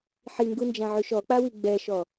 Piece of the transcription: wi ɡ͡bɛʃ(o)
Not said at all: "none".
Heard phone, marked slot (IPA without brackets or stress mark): ɔ